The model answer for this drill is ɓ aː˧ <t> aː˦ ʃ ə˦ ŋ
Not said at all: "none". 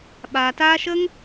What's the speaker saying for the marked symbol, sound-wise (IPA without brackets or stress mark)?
t